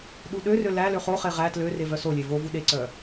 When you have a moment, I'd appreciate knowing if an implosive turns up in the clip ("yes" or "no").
yes